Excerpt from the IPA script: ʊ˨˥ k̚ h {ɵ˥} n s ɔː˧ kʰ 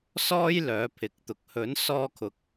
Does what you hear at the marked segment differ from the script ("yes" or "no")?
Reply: yes